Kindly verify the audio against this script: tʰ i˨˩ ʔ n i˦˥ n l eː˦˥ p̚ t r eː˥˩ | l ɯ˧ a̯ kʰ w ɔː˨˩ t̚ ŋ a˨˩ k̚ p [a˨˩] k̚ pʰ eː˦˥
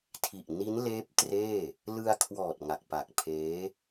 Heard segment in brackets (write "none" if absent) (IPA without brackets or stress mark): a˨˩